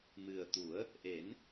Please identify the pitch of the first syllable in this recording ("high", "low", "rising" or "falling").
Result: low